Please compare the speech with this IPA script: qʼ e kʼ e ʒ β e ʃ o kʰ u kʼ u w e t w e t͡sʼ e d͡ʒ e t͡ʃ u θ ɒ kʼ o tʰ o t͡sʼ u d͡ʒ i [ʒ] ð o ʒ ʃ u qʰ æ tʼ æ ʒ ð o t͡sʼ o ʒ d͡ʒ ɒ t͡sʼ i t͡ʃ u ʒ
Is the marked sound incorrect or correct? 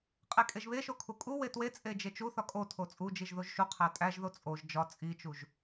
correct